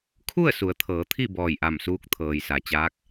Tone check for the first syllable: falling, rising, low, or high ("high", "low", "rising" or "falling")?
falling